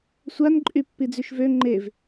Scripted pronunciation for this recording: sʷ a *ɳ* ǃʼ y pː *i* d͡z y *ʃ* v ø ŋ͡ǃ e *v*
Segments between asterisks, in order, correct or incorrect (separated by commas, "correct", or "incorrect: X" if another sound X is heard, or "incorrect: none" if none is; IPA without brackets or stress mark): incorrect: n, correct, correct, correct